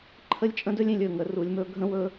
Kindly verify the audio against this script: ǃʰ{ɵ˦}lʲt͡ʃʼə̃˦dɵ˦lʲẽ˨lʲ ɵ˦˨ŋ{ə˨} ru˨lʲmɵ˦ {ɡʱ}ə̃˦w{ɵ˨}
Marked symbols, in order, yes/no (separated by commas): no, yes, yes, no